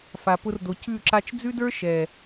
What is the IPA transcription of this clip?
f a˨ p ʊ˧ r d o˨ c ʉ˦˨ ǁ a˧ t͡ʃ d͡z ʉ˦ d ə˞˦ ʃ ɛ˨

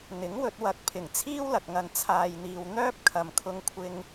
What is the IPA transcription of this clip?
n̪ ɪ˨˥ ŋ w ɵ˧ t̚ w ɐ˨˥ k̚ pʰ ɪ˨˩ ŋ t͡sʰ iː˥ w l ɐ˨ k̚ ŋ ɐ˨ n t͡sʰ aː˨ j n̪ iː˨ w n̪ œː˥ p̚ kʰ ɐ˨ m kʰ ʊ˧ ŋ kʷʰ ɪ˧ ŋ

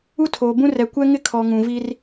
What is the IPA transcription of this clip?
u˦ tʰ oː˨ b ũ˦ r ɛ˨ kʷ ɛ˦ ŋ ɪ˦ kʰ ɔ˨ ŋ ũ˨ v i˦ r

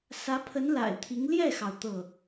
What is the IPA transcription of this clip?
s ä˧˥ pʰ ə˧˥ n l a̰˨˩ ɪ̯ t̪ʰ i˧˥ ŋ l j ɛ˥˩ x ɑ˩ ʊ̯ t̪ ɤ˥˩

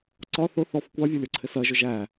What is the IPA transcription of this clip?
ǀ ɒ θ ʊ θ ɔ f kʷ ɑ vʲ ɒ lʲ ɒ ǀʰ ɪ s ɜ ʒ ʊ ʒ æ

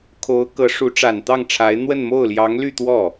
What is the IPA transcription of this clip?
kʰ o˧˥ ʊ̯ k ɤ˧˥ ʂ u˧˥ ʈ͡ʂ a˨˩ n t̪ ɑ˥˩ ŋ ʈ͡ʂʰ a˧˥ ɪ̯ n̪ w ə˥˧ n m o˥˩ ʊ̯ l j ɑ˧˥ ŋ l y˥˧ t̪ w ɔ˥˩

